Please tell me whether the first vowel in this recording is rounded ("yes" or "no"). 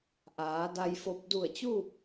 no